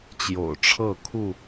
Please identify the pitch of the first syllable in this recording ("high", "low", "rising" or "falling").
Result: low